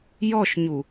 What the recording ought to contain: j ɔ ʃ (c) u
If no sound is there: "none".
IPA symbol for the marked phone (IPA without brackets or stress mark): ɲ